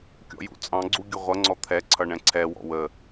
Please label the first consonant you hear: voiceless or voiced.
voiceless